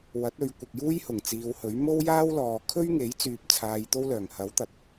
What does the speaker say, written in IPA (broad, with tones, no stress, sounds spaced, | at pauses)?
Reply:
w ɐ˨˥ t̚ ɵ˨˧ ɥ kʷ ɪ˨ k̚ j uː˥ j h ʊ˨˩ ŋ t͡s iː˨˧ w h ɵ˨˥ ɥ m o˥ w j aː˥ w l ɔː˨ kʰ ɵ˥ ɥ ŋ e˨˥ j t͡s yː˧ p̚ t͡sʰ aː˧ j t̪ o˥ w l œː˨˩ ŋ h ɐ˨˥ w t̪ ɐ˨ t̚